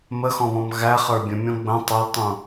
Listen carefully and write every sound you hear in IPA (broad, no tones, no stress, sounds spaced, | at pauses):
m ə x ɔ̃ β ɔ̃ m ɣ æ χ ə˞ bʲ ə̃ mʲ ɔ̃ ɡ͡b ə̃ tˤ ʌ l tˤ ũ